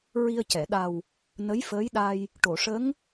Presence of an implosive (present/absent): present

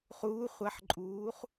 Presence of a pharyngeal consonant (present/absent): present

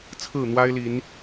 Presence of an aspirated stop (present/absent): present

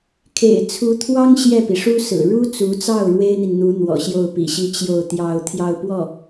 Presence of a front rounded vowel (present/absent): absent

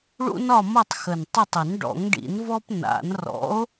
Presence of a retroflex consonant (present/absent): present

